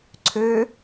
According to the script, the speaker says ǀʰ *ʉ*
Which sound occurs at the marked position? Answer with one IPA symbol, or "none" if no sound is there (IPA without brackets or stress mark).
ø